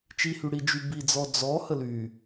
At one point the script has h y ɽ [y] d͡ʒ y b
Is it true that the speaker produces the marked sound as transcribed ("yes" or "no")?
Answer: no